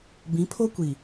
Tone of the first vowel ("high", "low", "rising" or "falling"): rising